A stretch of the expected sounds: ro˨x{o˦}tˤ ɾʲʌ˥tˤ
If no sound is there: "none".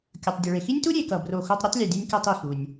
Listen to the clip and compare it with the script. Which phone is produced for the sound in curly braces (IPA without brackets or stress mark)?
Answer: o˦